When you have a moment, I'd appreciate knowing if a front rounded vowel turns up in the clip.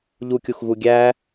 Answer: no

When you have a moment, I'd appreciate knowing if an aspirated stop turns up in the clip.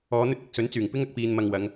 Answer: no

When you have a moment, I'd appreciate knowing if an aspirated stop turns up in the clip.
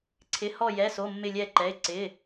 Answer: yes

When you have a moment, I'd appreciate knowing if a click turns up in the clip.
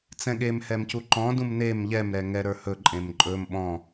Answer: yes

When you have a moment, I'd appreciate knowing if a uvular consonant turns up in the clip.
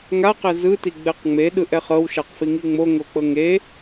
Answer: yes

